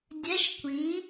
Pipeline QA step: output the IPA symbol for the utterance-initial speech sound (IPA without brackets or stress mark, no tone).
dʲ